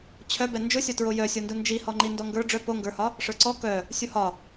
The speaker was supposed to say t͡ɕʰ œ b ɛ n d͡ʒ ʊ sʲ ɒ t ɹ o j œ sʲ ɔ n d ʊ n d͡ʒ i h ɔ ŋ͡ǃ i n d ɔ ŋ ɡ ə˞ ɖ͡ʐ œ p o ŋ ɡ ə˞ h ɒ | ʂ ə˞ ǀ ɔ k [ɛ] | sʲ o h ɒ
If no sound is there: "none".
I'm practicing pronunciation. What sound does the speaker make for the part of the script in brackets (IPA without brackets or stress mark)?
œ